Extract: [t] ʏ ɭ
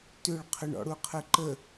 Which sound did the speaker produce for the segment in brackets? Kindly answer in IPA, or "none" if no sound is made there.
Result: t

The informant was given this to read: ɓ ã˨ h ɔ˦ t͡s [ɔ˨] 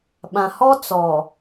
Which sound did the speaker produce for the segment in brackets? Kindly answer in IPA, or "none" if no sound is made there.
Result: ɔ˨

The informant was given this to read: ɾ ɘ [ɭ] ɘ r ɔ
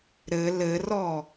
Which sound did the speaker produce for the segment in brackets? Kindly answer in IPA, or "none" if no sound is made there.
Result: l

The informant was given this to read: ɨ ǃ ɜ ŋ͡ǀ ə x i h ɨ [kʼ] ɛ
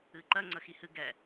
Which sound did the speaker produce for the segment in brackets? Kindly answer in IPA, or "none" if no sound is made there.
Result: ɡ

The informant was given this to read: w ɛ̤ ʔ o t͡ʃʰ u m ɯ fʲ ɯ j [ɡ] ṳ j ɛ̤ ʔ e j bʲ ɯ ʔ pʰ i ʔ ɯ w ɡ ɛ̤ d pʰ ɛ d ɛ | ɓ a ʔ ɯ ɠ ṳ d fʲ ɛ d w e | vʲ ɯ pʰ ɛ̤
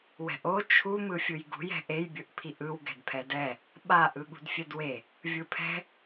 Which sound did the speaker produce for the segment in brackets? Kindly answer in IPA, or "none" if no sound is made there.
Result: ɡ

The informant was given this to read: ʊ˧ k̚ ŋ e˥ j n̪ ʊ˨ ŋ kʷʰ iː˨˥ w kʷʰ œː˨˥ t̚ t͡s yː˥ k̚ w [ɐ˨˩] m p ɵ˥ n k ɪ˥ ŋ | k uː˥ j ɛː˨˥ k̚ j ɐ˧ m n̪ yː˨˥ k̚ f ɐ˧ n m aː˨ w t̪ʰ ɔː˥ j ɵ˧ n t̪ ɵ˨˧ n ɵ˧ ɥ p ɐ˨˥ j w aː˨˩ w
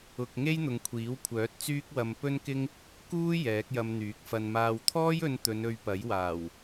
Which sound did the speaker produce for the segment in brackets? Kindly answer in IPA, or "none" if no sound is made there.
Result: ɐ˧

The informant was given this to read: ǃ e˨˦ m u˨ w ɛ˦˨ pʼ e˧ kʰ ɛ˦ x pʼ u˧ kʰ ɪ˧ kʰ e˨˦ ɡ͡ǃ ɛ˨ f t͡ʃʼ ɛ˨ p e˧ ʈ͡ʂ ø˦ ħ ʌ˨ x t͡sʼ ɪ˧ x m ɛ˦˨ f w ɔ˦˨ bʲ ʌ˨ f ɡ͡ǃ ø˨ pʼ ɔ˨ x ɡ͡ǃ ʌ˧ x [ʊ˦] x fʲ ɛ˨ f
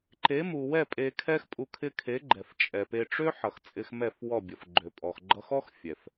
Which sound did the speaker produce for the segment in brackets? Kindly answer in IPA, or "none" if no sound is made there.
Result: ɔ˦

